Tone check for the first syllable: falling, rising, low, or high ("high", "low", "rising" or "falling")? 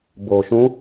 low